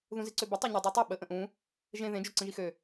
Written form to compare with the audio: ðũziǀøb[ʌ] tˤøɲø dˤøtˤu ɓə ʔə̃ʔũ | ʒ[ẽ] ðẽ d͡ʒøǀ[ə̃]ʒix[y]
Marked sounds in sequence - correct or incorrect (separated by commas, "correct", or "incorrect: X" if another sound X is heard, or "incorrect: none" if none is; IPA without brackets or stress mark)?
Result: incorrect: ə, correct, correct, incorrect: ø